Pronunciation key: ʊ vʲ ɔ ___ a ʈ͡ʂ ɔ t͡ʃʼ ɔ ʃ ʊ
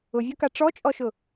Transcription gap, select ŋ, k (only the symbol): k